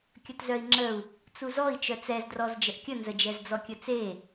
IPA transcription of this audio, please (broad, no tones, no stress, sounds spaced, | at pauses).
kʲ ə t z œ i̯ ŋ͡ǁ ə u̯ | t͡s u z ɔ i̯ t͡ʃ œ t͡s ɛ z d r ɔ z d͡ʒ ə ʔ kʲ ə n z ə d͡ʒ ɛ z d͡z ɔ kʲ ə t͡s e